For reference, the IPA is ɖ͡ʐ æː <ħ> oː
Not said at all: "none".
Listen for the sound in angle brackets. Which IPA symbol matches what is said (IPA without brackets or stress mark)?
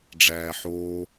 ħ